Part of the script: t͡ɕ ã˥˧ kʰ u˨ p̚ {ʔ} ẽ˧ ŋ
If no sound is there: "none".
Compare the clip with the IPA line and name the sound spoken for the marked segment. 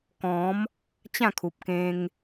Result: k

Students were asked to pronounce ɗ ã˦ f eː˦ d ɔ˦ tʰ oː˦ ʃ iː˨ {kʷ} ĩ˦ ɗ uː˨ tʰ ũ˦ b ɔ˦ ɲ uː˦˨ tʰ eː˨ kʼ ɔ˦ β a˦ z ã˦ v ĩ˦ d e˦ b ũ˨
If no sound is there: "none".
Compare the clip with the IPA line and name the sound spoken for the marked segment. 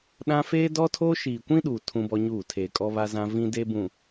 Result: kʷ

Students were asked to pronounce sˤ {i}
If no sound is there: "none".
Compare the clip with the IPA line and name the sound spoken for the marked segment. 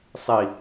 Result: i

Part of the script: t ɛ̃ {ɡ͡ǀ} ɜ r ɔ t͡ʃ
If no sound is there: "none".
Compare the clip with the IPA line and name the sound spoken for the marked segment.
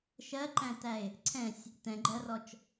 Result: ɡ͡ǃ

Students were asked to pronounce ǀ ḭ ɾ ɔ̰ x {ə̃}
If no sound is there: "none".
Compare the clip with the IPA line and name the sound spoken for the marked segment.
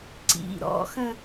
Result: ə̃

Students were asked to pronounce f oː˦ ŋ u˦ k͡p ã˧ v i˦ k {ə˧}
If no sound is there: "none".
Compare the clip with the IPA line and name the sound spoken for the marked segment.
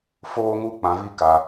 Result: a˧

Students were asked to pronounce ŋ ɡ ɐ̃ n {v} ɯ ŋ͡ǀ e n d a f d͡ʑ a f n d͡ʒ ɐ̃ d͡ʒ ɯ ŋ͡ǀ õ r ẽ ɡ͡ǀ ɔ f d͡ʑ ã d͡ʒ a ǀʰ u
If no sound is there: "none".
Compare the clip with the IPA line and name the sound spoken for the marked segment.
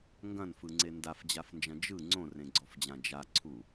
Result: f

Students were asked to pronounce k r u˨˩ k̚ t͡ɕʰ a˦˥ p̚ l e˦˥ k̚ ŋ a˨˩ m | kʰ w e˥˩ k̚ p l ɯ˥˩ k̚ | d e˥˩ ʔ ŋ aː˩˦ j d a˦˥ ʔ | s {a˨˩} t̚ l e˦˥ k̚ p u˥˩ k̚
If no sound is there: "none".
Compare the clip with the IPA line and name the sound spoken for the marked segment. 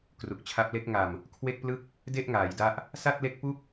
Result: a˥˩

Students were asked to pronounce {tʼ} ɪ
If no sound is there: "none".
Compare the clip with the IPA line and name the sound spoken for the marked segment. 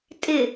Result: tʼ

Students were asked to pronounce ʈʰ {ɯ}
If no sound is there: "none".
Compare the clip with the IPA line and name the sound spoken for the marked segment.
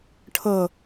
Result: ɤ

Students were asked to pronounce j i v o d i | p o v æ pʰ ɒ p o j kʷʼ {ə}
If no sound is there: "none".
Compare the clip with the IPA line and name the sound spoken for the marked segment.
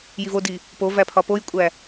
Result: æ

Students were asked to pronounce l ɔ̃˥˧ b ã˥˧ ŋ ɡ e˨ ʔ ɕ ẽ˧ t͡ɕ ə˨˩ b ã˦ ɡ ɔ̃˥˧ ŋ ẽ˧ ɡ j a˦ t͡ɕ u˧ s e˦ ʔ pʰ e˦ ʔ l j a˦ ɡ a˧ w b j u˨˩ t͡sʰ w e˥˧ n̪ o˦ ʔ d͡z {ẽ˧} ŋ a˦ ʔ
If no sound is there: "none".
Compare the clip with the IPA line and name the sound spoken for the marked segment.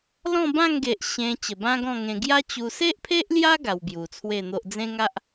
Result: ẽ˦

